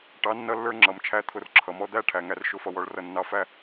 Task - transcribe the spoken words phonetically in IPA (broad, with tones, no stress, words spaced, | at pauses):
ʈɑ˨˦nːʌ˧lːə˞˧ ŋ͡ǁʌ˨m t͡ʃʰæ˦t̪ʰʊ˧rǁʰʌ˨mɔ˦ d̪æ˦˨ ʈʰæ˨ŋæ˧r ʃʊ˦fʌ˧ wɔ˧ɭrʌ˧ nːɑ˧fæ˦